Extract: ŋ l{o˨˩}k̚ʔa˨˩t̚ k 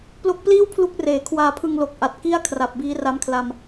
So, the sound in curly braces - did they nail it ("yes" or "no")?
yes